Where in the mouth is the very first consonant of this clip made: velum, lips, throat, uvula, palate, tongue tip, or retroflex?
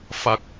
lips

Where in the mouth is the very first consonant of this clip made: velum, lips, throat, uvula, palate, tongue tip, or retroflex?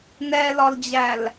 tongue tip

